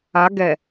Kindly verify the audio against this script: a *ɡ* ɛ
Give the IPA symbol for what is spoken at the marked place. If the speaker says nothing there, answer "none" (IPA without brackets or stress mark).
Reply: ɡ